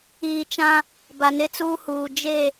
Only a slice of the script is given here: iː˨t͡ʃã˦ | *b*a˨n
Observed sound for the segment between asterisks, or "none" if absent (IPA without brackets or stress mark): b